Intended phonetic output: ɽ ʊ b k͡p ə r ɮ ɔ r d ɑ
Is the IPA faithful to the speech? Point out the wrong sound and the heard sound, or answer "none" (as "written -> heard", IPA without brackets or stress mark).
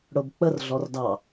none